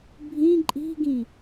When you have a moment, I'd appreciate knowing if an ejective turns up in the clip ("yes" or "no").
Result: yes